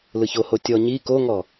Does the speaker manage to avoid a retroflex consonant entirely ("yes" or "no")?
yes